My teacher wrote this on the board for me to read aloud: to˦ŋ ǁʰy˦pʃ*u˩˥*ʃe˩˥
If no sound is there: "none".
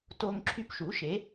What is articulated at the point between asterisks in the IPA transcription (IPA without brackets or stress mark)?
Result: u˩˥